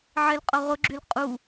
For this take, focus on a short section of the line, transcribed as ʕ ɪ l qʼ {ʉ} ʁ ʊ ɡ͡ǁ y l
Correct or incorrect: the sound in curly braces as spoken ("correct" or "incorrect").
incorrect